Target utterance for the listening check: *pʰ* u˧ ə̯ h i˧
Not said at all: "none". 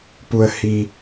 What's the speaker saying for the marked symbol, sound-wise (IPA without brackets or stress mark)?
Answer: p